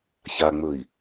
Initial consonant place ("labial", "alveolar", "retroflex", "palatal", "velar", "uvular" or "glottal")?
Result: palatal